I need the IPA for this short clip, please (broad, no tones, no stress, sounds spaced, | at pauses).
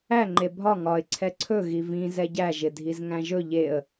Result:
æ ŋ͡ǃ e bʱ ɒ ŋ ɒ ɪ̯ ǀʰ ɛ ǀʰ ɵ ɣ i v ĩ z ɛ ɟ æ ʒ ɪ dʱ i z ŋ æ̃ ʒ ɵ ʎ e ə̯